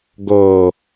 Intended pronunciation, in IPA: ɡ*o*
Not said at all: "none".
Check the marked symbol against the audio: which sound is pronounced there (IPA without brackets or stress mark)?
o